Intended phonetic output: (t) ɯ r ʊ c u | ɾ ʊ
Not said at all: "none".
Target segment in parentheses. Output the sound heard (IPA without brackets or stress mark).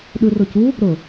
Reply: ɗ